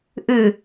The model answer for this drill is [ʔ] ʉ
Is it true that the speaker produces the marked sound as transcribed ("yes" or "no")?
yes